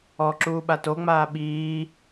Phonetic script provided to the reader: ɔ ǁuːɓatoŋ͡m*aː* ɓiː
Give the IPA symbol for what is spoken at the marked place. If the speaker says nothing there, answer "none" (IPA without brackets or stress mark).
aː